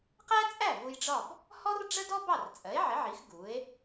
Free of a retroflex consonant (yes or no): no